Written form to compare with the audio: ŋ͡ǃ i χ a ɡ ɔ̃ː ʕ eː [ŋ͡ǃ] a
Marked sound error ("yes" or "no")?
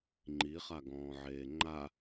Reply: no